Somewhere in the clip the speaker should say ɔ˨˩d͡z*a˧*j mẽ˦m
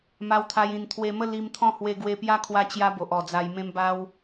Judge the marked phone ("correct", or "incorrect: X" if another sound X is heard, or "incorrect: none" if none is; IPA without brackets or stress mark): correct